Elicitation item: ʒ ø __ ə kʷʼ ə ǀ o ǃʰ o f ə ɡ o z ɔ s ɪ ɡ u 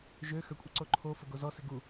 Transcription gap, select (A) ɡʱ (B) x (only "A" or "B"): B